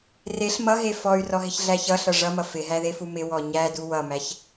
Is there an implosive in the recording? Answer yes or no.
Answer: no